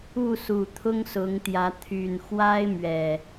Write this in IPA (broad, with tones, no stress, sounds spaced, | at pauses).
u˥˨ s u˨˩ t̪ʰ ʊ˦ ŋ s ʊ˨˦ ŋ t̪ j ä˨˦ t̪ʰ y˨˩ n x w a˦ ɪ̯ m ɥ ɛ˨˩